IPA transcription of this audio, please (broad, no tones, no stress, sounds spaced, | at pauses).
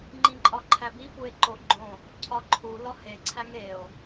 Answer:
ŋ͡ǃ ĩ ǃʼ ɒ ǃʰ æ b i f u e̯ ǃ o ɡ͡ǃ õ | cʰ ɒ ǃʰ u l ɒ h e ǀʰ æ ŋ e o̯